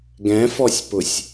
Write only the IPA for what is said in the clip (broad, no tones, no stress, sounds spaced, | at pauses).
ɡ ɛ̃ f ɔ sʲ p ʊ sʲ